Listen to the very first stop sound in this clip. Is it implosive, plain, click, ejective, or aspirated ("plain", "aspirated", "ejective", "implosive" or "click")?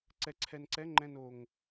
click